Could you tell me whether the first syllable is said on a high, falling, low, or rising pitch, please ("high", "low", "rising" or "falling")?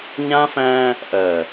high